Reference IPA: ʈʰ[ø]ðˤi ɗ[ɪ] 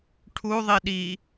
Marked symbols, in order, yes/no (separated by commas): no, no